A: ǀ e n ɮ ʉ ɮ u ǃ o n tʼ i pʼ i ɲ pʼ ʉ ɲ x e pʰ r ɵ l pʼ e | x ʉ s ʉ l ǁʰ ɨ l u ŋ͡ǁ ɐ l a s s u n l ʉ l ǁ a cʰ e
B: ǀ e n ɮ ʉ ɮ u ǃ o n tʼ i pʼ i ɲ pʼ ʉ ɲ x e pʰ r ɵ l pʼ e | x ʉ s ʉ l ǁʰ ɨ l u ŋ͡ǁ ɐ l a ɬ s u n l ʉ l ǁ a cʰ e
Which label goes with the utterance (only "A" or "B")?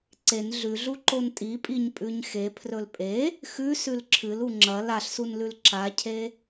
B